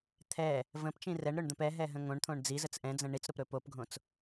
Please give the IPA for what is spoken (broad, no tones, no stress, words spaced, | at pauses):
t̪ʰɛ | və̃pt͡ʃĩ rɛɳɾɵɳd̪ə̃p ɛɦɛɦə̃ ŋõɳt̪ʰõɳ d͡zizət͡s ʔɛ̃d͡zə̃ ɳit͡sɾopɾɵ popɡʱõt͡s